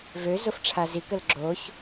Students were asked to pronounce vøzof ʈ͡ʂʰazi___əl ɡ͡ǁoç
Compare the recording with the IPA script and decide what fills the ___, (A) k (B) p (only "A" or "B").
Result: A